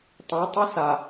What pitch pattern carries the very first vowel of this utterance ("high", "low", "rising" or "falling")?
rising